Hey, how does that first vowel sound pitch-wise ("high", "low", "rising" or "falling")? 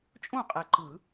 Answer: falling